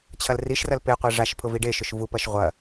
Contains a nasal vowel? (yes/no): no